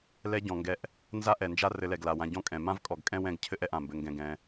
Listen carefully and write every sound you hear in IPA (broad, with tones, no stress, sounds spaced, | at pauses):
l ɛ˧ ɟ ɔ̃˨ ŋ ɡ ɛ˧ ʔ | n z a˦ ʔ ɛ˨ n d͡ʒ a˦ r ɘ˧ l ɛ˨ ɡ l a˨ w ã˧ ɟ ɔ̃˦ kʼ ɛ̃˨ m ã˦ v kʼ ɔ˨ ɡ kʼ ɛ̃˦ w ɛ̃˦˨ ɡ cʰ ɘ˦ ʔ ɛ˧ ʔ ã˨ m b ɘ˧ ŋ ɡ ɛ̃˧ ɡ ɛ̃˧